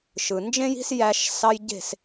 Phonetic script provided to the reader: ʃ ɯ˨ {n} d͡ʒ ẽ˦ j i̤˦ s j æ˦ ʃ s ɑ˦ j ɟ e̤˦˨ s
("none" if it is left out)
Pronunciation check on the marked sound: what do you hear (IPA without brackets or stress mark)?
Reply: n